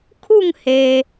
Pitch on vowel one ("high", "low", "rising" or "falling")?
falling